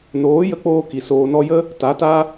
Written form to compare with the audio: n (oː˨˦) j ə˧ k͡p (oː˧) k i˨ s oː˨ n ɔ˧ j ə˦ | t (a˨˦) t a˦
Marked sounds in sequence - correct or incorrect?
correct, correct, correct

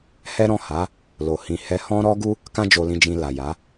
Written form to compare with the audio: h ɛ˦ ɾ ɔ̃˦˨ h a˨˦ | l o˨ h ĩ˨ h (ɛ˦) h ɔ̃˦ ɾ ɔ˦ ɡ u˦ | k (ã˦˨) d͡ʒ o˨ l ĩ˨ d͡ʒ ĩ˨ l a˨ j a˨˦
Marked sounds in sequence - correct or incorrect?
incorrect, incorrect

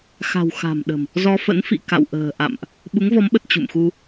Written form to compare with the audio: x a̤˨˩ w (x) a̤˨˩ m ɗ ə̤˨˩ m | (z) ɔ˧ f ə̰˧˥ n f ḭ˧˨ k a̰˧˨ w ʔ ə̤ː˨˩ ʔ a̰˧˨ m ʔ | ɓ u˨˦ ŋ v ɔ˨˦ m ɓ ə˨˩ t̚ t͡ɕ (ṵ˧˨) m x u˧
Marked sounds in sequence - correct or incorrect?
correct, correct, correct

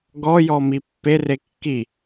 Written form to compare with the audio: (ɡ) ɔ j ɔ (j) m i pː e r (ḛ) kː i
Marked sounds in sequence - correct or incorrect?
correct, incorrect, incorrect

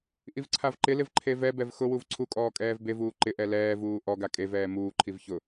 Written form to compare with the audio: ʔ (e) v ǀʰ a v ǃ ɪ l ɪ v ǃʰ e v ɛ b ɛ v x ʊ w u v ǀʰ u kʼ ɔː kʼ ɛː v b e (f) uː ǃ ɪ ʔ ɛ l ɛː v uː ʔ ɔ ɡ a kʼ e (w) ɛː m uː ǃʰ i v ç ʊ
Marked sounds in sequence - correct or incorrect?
incorrect, incorrect, incorrect

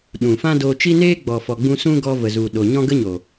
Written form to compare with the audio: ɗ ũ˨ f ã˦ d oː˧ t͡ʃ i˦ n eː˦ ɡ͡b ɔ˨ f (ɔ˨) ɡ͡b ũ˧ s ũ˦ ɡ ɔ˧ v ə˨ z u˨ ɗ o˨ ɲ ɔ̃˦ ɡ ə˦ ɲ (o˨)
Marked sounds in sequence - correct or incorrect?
correct, correct

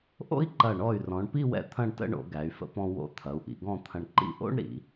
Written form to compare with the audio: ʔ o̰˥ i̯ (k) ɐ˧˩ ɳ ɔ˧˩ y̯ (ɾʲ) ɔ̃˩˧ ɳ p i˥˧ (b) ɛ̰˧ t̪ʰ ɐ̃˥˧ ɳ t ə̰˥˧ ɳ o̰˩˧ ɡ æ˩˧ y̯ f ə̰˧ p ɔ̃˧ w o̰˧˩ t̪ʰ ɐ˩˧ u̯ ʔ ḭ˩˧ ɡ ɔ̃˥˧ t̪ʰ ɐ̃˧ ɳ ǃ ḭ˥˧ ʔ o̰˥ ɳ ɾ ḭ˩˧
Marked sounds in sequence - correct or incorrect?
incorrect, incorrect, incorrect

